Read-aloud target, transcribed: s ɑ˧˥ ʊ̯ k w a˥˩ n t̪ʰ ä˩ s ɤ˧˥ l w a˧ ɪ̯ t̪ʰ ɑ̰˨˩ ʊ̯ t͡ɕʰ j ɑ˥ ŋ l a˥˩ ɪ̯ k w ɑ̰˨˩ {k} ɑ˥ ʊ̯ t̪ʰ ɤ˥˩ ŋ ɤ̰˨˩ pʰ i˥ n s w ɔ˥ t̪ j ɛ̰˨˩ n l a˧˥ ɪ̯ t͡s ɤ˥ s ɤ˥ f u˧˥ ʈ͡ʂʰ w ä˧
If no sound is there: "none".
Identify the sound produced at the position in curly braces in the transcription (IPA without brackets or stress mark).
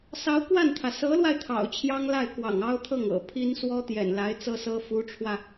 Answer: ŋ